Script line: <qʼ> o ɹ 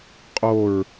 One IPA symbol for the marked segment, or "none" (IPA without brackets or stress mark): qʼ